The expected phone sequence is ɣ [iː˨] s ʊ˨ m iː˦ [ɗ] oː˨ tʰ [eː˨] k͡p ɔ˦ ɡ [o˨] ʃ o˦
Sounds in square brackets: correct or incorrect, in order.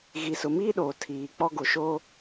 incorrect: i˨, correct, incorrect: iː˨, correct

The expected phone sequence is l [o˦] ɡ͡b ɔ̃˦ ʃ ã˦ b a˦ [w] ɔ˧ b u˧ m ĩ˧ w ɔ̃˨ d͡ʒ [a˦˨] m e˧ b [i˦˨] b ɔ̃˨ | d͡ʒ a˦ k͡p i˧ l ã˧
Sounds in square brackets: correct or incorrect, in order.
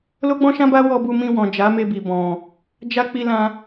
correct, correct, incorrect: a˨˦, incorrect: i˨

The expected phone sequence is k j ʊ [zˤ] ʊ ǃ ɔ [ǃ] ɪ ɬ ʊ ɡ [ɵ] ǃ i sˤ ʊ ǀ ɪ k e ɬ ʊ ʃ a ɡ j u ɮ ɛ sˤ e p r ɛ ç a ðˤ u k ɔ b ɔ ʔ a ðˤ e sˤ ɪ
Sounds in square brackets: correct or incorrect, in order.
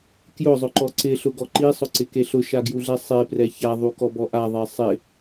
correct, incorrect: ǀ, incorrect: ɔ

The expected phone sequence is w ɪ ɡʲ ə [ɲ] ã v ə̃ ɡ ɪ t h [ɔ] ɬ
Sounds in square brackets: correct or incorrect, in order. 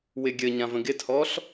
correct, correct

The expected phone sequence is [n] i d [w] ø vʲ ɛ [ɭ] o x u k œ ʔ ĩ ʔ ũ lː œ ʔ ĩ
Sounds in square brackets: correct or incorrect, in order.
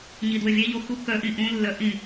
incorrect: ɲ, correct, incorrect: ʎ

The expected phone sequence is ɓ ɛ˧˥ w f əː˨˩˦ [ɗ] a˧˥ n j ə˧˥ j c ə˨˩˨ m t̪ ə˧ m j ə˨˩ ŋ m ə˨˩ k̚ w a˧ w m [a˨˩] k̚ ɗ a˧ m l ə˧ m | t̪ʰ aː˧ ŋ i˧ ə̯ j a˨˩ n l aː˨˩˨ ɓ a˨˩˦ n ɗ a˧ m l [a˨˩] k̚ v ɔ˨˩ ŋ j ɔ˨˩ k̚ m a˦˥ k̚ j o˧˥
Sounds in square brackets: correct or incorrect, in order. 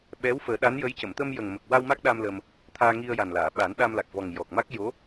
correct, incorrect: a˦˥, correct

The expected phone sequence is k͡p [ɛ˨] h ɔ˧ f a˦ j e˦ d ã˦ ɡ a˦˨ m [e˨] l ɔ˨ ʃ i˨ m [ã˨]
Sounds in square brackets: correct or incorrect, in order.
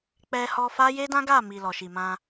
incorrect: ɛ˧, incorrect: i˨, incorrect: ã˧

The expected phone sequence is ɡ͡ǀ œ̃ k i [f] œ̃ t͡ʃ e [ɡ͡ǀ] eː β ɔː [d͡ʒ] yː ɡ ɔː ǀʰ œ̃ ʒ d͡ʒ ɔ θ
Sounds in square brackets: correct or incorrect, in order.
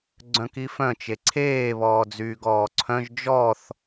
correct, incorrect: ǀʰ, incorrect: d͡z

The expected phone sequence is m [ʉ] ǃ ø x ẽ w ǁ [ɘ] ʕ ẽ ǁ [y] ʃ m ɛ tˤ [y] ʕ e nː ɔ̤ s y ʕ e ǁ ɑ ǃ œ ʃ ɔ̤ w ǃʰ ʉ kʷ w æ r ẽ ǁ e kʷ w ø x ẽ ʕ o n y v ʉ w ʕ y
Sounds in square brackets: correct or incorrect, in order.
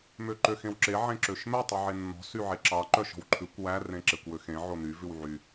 incorrect: ø, incorrect: e, incorrect: ø, correct

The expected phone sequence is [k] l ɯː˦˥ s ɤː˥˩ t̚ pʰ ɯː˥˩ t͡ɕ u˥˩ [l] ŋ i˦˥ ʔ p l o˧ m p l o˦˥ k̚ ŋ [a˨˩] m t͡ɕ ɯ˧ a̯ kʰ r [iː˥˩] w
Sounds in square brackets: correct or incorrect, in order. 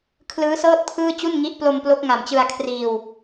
incorrect: kʰ, incorrect: n, correct, incorrect: iː˧

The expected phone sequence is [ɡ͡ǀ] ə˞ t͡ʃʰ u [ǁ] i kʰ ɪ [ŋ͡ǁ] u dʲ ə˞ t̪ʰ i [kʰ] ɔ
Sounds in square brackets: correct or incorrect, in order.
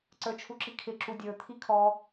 incorrect: ǀ, correct, incorrect: ǁ, correct

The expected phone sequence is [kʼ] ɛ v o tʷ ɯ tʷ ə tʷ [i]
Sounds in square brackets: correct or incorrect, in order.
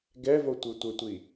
incorrect: ɡ, correct

